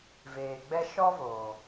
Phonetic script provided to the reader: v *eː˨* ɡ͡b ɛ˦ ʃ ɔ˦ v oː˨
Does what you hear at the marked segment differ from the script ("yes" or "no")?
no